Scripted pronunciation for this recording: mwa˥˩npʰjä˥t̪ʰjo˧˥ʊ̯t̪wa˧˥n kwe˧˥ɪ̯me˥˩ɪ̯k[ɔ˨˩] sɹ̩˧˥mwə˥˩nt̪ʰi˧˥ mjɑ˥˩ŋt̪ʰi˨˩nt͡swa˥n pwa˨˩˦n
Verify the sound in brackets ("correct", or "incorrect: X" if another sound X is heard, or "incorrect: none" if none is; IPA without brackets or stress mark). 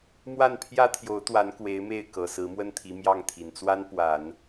incorrect: ɤ˨˩